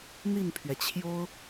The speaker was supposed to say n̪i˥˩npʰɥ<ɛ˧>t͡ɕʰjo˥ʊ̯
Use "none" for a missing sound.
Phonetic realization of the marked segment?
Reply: ɛ˩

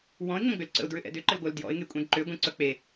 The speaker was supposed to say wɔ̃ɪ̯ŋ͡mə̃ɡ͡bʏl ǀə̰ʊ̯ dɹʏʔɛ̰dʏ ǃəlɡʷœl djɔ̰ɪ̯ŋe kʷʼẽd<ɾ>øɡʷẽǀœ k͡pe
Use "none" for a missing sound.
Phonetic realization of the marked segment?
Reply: ǃ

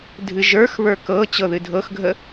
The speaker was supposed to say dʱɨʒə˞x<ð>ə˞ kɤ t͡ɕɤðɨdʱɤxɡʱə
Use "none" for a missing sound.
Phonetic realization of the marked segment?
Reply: β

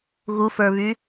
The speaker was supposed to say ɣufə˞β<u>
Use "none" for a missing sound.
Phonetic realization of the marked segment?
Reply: y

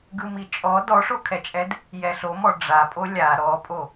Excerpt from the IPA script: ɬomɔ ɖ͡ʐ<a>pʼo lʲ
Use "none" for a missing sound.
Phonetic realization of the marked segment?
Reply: a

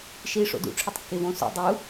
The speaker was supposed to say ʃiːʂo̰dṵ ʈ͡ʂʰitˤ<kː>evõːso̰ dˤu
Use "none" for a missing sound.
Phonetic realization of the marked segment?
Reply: kː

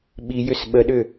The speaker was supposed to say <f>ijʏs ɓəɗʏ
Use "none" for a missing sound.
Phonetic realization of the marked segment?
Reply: ɓ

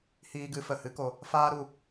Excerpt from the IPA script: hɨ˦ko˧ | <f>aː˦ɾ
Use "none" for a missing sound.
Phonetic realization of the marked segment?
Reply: f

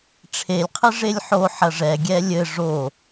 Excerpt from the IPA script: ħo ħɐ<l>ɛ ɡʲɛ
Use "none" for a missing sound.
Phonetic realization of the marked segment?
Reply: ʐ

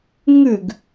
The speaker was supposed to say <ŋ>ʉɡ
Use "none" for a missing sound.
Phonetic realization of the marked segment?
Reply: ŋ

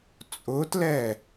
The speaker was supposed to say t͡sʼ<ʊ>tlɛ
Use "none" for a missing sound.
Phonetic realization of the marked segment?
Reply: ʊ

